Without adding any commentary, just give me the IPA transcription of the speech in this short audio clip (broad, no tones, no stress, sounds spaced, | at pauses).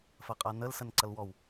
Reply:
f ɐ qʼ a n ə l s ə n ǀ ɐ l w ɔ w